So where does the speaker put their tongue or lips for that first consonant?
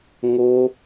velum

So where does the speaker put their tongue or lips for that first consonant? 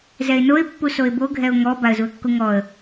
tongue tip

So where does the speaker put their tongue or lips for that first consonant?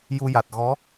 palate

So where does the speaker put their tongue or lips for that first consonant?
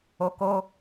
velum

